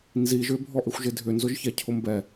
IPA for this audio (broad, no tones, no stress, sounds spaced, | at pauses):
n z i ʒ ʏ bʱ ɔ ʔ ɪ xʷ ʒ ɪ dʱ ʏ n z ʊ ʒ ç ɛ cʰ ʊ m b ɛ